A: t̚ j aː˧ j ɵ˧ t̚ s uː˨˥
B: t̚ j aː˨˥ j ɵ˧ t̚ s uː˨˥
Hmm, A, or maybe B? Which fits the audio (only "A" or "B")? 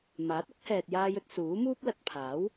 A